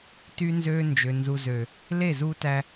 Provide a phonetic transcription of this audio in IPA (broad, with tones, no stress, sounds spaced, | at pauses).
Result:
t yː˦ n z øː˦ n d͡ʒ ø˨ n z u˨ z øː˨ | l e˦˨ z uː˦ t æ˦